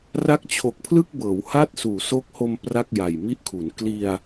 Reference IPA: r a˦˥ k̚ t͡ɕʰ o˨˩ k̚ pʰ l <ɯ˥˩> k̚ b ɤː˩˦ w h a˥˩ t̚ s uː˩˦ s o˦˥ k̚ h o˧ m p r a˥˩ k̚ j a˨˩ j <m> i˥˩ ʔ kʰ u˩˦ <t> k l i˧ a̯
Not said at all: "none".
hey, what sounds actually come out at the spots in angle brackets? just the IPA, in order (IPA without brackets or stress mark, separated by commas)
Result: ɯ˥˩, m, n